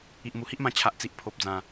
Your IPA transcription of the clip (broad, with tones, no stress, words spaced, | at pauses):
i˨ʔmu˨˩hi˦ʔmã˧ t͡ɕʰa˨ʔt͡si˨ʔ pʰo˨p̚d͡zã˨˩